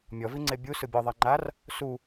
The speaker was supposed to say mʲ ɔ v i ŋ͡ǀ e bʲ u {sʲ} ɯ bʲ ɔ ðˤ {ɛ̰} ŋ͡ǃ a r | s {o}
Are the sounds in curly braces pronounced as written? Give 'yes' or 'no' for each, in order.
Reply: no, no, no

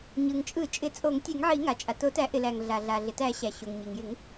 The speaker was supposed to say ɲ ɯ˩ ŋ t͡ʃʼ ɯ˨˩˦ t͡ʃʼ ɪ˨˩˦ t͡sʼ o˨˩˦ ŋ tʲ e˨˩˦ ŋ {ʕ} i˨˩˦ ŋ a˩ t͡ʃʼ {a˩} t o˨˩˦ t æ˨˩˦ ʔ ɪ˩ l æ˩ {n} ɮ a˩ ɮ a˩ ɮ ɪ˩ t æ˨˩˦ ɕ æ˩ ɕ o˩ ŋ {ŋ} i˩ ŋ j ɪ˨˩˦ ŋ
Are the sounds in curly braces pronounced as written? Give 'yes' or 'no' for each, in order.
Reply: yes, yes, no, no

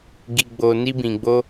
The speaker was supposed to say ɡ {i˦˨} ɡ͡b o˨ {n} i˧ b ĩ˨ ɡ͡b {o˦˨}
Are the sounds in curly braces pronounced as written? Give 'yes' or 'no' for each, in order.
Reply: no, yes, no

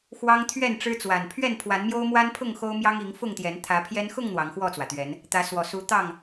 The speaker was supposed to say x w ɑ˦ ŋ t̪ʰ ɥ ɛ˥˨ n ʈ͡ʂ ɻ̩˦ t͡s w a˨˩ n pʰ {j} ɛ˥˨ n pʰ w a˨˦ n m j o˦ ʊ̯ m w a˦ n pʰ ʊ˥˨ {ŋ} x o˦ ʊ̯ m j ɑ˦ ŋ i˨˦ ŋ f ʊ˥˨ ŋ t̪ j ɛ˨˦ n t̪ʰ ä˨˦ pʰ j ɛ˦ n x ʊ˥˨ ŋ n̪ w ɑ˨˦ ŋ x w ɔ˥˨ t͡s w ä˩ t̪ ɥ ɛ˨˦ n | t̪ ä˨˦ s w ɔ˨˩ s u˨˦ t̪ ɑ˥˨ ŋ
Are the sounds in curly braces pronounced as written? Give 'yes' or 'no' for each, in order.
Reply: no, yes

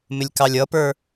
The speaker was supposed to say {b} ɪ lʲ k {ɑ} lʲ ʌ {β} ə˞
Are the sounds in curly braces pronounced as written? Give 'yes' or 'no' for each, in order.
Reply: no, yes, no

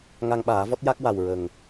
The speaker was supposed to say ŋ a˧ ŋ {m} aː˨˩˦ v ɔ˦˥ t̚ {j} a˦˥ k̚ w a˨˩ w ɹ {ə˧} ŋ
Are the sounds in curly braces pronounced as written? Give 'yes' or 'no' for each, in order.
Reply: no, yes, no

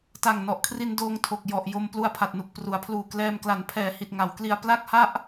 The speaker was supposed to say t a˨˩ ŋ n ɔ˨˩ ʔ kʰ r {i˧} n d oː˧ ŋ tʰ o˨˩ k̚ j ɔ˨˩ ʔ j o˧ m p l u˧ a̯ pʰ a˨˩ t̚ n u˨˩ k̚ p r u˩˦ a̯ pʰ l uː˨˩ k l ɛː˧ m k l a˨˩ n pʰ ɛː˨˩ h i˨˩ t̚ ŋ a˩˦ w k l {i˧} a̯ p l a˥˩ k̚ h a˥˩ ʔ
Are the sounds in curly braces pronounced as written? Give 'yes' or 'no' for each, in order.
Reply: yes, yes

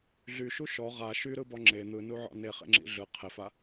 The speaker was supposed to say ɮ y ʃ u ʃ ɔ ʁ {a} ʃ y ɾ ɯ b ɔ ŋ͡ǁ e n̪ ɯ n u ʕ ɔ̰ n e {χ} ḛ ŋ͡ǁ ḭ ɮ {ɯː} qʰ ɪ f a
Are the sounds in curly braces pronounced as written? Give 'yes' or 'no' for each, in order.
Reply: yes, yes, no

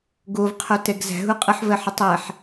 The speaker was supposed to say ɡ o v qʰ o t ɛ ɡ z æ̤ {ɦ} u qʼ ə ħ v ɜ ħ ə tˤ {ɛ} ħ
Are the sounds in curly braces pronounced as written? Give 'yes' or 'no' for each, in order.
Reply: yes, no

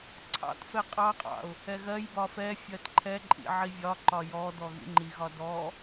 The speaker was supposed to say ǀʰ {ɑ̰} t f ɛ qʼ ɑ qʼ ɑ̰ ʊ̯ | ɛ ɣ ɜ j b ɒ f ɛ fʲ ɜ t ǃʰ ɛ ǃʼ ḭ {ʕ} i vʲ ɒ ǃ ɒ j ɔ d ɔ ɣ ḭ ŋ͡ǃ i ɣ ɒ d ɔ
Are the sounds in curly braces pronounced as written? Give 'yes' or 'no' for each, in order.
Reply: yes, yes

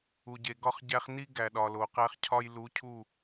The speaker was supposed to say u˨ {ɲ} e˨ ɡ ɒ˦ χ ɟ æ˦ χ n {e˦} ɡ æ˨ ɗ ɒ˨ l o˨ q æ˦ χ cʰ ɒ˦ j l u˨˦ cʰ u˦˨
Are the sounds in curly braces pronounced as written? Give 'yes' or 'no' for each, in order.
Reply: no, no

